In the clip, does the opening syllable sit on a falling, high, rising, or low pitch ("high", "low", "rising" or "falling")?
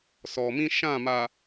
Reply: low